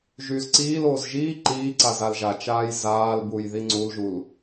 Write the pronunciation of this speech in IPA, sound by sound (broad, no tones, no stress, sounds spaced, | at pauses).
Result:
ʒ yː z ǀ iː l oː z ʒ iː ǃ iː ǀ a z a l ʒ a t͡ʃ aː j z aː l b u j ð i ŋ͡ǀ u l ʒ u l